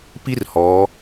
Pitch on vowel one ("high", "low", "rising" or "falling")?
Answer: high